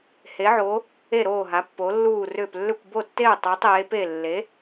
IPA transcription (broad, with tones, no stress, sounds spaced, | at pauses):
h e˩˧ ʕ o˩˧ | e˧˩ ɾ oː˧˩ ɦ a˩˧ pː o˩˧ lː uː˧˩ r ʏː˧˩ p lː ʏ˧˩ kʷ b o˧˩ tː e˧˩ u̯ tˤ uː˩˧ tˤ eː˩˧ p e˧˩ lː e˩˧